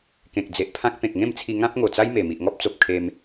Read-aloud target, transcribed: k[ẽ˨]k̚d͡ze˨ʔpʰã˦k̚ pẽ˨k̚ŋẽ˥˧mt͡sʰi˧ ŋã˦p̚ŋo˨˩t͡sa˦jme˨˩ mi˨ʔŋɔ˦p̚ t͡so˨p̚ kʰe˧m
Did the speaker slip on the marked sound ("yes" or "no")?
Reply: no